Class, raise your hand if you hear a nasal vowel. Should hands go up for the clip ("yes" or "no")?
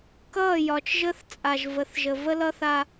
no